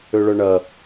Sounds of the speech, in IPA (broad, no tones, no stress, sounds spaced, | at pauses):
ø ɭ œ ɳ ɐ